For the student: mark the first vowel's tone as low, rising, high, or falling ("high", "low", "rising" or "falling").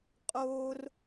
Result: high